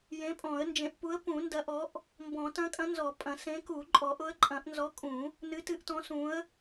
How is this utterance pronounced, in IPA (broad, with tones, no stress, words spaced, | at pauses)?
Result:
jẽ˨˥pʼɔ̃˨˩˦ə̯nd͡ʒẽ˨˩˦ʔpu˨˥ə̯ pũ˨˩˦ndɐ˨˥ ʔɔ˨˥ʔ | mbɔ̃˨˩˦tɐ̃˨˥kʼɐ̃˨˥ nzɔ˨˩˦pʼɐ̃˨˩˦ sẽ˨˥ku˨˩˦ ǃʼɔ˨˩˦ʔʊ˨˥ə̯ǃʼɐ̃˨˩˦ʔ nzɔ˨˥ kʼũ˨˩˦ | nɨ˨˥tɨ˨˥ʔtɔ̃˨˥ sũ˨˥ə̯